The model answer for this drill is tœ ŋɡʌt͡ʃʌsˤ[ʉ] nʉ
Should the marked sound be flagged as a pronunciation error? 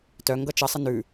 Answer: yes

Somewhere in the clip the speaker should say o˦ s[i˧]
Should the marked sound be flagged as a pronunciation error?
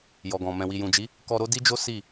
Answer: yes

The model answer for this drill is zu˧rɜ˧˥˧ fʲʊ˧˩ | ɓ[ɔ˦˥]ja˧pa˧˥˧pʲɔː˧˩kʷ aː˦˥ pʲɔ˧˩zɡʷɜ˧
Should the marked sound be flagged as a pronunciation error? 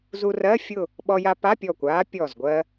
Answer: yes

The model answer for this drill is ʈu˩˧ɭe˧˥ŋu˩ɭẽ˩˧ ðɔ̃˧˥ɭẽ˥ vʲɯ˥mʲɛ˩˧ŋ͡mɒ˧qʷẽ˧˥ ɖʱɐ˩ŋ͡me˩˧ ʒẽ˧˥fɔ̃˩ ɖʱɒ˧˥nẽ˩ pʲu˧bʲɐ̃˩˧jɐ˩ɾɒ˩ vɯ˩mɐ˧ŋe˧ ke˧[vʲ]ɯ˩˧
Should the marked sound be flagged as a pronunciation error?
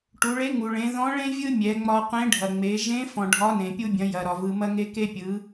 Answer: yes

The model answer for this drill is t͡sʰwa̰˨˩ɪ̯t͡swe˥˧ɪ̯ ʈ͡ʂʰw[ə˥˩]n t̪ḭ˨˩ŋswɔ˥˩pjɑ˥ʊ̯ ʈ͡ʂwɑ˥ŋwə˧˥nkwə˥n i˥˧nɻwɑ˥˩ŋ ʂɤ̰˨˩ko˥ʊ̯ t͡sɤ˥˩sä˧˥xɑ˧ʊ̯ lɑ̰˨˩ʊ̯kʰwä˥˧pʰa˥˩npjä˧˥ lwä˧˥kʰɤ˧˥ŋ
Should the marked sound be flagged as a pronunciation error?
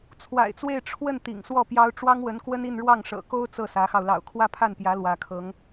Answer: no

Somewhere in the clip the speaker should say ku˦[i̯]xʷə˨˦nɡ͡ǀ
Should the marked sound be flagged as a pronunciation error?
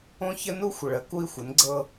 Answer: no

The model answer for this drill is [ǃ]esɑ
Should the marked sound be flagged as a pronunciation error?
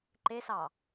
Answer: no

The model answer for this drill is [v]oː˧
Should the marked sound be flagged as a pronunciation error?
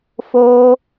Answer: yes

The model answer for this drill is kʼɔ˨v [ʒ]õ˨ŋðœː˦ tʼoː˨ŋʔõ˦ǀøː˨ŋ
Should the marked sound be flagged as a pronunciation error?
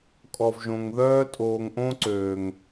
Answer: no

